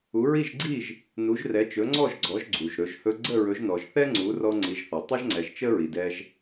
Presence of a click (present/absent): present